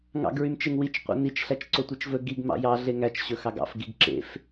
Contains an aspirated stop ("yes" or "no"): no